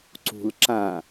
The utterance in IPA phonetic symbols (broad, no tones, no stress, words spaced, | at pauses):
ǀṳl ǁã